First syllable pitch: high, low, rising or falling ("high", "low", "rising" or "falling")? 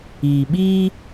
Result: low